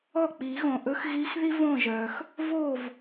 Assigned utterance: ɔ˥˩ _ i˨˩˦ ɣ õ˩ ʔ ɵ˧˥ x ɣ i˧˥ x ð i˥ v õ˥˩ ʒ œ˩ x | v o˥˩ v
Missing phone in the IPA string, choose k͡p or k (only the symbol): k͡p